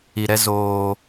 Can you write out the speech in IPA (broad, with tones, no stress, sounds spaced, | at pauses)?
i˨ ɾ ɛ˦ z oː˦